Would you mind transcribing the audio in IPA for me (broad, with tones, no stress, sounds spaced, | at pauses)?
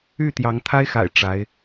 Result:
y˥˩ t̪ j ɑ˧˥ ŋ t̪ʰ a˥ ɪ̯ x a̰˨˩ ɪ̯ ʈ͡ʂ a˧˥ ɪ̯